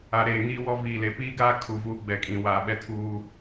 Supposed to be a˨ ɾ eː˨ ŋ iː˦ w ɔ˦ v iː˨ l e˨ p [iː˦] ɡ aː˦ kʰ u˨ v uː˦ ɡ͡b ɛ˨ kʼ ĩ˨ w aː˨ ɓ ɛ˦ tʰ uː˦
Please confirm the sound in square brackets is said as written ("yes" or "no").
yes